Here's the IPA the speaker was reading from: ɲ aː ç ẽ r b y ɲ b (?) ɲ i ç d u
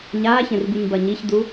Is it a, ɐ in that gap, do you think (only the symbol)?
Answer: ɐ